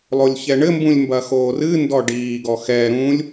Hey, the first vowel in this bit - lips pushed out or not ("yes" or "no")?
yes